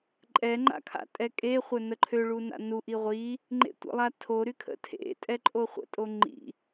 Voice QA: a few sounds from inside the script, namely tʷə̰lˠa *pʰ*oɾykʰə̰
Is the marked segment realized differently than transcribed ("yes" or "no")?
yes